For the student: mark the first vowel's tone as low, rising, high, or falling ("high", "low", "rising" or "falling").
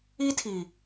high